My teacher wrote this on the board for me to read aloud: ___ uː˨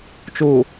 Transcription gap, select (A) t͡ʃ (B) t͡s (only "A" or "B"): A